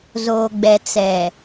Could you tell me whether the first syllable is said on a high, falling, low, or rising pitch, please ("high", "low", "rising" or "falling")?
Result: low